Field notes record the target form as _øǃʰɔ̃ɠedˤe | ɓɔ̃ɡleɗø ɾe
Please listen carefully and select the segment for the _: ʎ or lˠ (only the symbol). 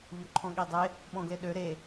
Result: ʎ